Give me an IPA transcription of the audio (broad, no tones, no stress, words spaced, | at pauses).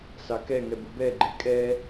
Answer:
sɑkɛŋɛb ubɛɡ͡ǃe kʼɛ